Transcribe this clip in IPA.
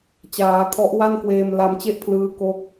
t͡ɕaː˩˦kʰɔ˦˥ʔ wa˥˩nkweː˧m la˧mt͡ɕe˥˩ʔpʰlɯː˦˥ ko˥˩k̚

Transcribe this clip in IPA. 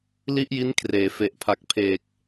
li˥˩ʔji˦˥n kʰreː˩˦fe˨˩ʔpʰa˨˩k̚pʰeː˨˩k̚

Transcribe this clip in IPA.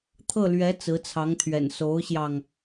t̪ʰɤ˥˩lɥɛ˧˥ t͡sɹ̩˧˥t͡sʰɑ˧˥ŋt̪ʰɥɛ̰˨˩n so˧˥ʊ̯ɕjɑ˧ŋ

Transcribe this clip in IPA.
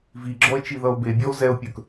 viɡ͡ǁɔe̯ t͡ʃiðʌo̯bebʲɔo̯ zɛo̯pʲə˞k

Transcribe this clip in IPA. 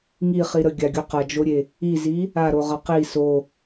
ŋiχi ɾəɡʲaɡʲu qɐd͡ʒoɾʲe | izi | aɾoʁɐ qi so

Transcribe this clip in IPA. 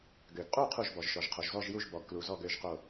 ɡø˩ɡqʼu˥˨ qʰu˥˨ʒbɔ˩ʒʃɔ˩ʒ qʰo˩ʒzɔ˥˨ʒju˥˨ʒ bɔ˩ɡklu˩zɔ˥˨ɡ ø˥˨ʒqo˥˨

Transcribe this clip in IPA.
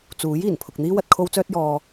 t͡suː˨˥j iː˨˩npʰʊ˨k̚n̪iː˥w ɐ˨t̚kʰo˧wt͡sœː˧t̚ jɔː˧

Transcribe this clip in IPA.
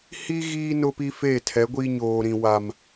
hi˦ ɣiː˦ nʊ˦pi˦feː˦˨tʰɛ˨˦ ɡʷi˦ɲoː˨ɾĩ˨ wa˨m

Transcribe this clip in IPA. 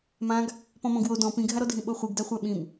mãɡ | pɔ̃mɔ̃ɡwo dɔ̃ pĩɡʱaɾɔdʱĩ ɓoχʷiɡdaχʷa ɓĩm

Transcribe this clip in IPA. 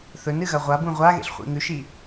θɵnɨɣɐ ʁʷabũ ʁʷaɣḛɬχʷḭ ŋʉʃi

